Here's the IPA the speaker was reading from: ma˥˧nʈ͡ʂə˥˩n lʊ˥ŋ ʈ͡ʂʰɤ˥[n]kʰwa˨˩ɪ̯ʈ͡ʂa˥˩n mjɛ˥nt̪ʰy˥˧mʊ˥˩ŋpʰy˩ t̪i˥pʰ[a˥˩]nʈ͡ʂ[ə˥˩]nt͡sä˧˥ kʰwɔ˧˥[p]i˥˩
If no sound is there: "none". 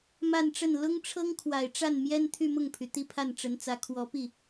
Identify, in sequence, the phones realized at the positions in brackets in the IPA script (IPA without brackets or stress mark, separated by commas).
ŋ, a˥˩, ə˧˥, p